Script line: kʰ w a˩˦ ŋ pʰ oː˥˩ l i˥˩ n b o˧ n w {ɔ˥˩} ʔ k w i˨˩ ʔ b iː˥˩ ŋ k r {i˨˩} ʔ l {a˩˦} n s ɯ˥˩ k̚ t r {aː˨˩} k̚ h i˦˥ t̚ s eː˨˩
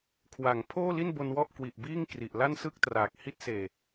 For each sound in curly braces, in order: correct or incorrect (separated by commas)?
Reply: correct, correct, incorrect, correct